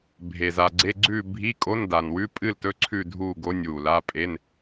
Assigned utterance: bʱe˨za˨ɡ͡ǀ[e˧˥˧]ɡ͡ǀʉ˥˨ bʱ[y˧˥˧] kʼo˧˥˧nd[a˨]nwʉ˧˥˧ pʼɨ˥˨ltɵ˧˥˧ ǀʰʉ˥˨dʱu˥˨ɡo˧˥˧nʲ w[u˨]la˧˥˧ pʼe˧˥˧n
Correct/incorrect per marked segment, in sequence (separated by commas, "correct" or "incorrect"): correct, incorrect, correct, correct